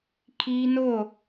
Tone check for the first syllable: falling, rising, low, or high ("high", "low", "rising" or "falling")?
high